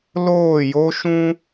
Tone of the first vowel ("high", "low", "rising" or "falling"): falling